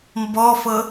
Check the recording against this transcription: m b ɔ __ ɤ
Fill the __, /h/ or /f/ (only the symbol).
f